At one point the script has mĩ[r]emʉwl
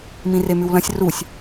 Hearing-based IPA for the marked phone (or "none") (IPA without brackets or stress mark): r